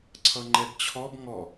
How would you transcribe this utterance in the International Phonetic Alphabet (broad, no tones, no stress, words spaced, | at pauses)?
ǀʰʌŋ͡ǃɛbt͡ɕʰɔb ŋɔ